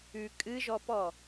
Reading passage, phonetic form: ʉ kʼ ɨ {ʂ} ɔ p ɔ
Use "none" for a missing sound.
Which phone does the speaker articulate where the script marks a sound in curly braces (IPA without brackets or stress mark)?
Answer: ʒ